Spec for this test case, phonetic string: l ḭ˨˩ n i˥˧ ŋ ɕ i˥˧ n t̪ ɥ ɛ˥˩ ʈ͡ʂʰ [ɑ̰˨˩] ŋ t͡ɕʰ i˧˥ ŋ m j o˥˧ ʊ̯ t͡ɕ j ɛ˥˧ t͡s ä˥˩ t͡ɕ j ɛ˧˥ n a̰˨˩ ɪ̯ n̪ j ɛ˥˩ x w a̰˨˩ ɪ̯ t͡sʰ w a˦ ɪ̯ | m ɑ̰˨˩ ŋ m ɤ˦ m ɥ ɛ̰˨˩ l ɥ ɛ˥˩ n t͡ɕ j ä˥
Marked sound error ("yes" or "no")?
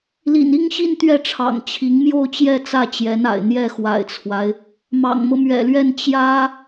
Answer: no